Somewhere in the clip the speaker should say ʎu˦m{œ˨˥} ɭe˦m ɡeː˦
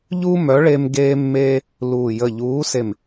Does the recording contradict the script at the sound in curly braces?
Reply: no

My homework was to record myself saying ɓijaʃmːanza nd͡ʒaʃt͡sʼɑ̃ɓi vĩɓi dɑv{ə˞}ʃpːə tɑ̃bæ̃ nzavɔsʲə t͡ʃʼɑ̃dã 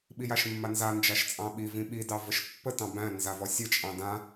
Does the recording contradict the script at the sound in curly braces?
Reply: yes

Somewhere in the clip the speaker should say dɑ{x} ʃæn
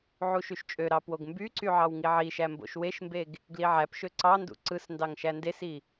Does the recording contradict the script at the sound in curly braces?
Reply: yes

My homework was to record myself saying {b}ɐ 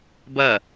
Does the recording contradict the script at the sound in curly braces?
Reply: no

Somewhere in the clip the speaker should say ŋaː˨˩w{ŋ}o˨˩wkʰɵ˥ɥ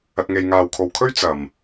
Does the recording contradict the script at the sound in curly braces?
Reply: yes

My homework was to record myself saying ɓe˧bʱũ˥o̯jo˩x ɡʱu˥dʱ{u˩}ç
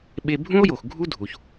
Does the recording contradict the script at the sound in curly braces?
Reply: no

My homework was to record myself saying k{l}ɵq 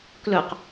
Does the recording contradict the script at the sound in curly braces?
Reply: no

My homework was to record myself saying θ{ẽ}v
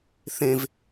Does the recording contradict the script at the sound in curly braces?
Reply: no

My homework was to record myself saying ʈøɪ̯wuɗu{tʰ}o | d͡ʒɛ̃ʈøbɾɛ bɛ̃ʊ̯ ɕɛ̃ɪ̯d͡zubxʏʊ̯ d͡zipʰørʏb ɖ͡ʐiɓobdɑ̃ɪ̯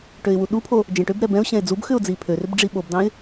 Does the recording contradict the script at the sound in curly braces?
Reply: yes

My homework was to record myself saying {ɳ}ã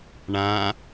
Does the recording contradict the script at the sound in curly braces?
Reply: no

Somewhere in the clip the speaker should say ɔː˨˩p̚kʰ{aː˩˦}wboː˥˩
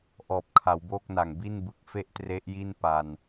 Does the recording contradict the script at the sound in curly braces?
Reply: yes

